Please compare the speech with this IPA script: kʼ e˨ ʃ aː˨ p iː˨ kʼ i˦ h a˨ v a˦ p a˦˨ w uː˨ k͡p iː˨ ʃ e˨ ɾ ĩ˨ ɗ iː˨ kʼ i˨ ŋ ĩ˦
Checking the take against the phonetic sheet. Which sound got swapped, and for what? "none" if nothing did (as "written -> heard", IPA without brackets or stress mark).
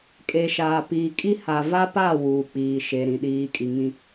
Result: none